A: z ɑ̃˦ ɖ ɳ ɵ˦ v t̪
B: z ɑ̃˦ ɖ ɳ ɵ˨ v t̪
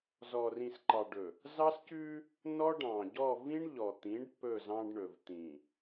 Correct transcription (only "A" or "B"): B